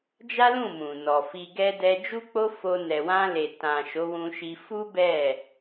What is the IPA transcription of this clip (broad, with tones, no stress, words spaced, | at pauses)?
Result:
d͡ʒa˦lũ˦˨mũ˨ nɔ˨fi˧ɡɛ˦ dɛ˧d͡ʒu˦k͡po˦ fo˧ nɛ˨wã˧le˨ tã˨ ʃo˨˦wũ˧ʃi˧ fu˦ bɛ˦˨